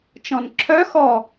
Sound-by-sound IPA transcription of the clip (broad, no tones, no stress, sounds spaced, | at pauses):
t͡ʃ ɔ̃ n ǁʰ œ x ɔ